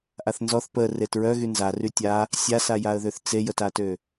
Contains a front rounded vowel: yes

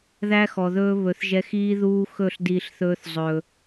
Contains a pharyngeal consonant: no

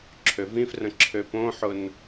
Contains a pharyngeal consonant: yes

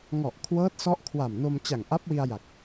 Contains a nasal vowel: no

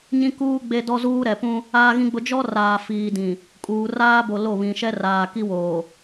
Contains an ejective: yes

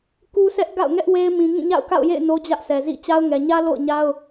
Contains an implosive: no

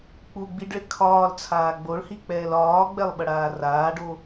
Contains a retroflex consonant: yes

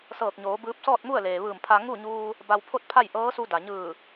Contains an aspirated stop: yes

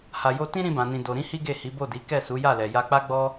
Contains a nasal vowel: yes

